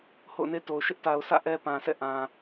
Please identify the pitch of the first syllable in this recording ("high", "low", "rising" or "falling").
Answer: falling